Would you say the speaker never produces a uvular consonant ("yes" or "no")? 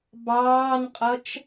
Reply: no